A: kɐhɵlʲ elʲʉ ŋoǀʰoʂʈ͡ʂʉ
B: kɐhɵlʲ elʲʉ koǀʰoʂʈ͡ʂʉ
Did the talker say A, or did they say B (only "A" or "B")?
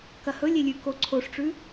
B